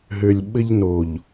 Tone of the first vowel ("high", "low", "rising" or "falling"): low